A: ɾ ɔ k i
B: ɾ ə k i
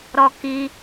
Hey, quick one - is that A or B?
A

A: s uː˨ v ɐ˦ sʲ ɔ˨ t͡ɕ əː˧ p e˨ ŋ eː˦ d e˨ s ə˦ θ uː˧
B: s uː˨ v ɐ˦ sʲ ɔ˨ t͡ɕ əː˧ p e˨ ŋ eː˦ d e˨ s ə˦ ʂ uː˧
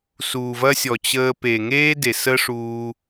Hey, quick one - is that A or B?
B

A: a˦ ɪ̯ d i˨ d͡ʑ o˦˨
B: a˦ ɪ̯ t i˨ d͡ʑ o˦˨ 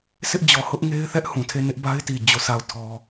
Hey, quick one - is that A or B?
B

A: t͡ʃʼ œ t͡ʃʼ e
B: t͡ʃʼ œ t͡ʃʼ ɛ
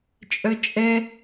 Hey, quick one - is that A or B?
B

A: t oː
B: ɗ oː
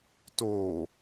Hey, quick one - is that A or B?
A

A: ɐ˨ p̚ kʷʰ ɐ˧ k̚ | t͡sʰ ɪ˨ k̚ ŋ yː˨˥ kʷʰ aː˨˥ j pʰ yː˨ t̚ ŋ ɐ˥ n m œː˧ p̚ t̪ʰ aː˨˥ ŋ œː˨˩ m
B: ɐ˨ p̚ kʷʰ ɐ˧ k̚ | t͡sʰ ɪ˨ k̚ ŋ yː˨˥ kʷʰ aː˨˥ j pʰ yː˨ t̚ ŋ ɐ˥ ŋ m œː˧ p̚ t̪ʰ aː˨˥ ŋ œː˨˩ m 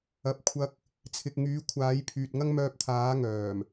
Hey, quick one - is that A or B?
B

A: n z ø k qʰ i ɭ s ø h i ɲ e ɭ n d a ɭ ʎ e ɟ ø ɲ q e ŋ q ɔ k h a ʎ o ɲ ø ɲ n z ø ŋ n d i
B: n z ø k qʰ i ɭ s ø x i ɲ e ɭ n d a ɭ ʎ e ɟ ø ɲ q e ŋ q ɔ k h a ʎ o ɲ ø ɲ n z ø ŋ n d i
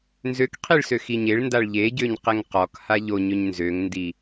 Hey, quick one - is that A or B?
B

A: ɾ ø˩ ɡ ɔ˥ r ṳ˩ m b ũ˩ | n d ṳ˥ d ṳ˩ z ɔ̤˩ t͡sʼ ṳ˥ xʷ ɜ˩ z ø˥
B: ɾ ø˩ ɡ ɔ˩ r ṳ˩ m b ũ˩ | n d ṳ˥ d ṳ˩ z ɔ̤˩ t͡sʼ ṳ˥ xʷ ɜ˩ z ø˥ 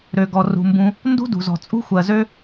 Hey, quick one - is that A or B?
B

